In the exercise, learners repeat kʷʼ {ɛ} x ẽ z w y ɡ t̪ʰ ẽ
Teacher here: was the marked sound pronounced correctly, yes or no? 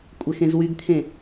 yes